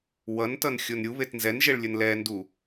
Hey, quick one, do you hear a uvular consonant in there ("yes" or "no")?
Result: no